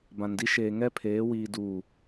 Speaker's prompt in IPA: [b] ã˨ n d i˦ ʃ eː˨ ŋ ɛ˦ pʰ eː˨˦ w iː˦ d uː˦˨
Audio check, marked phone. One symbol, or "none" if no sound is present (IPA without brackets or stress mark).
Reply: b